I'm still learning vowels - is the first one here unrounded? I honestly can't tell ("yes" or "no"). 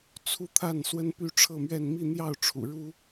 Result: no